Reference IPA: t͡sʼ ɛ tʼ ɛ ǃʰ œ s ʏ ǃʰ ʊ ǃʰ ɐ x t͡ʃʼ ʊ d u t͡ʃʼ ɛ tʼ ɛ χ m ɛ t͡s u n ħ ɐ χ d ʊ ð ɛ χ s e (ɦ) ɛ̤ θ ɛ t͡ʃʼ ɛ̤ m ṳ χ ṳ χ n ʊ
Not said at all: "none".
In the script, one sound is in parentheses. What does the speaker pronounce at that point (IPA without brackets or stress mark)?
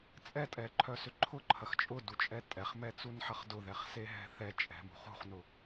ɦ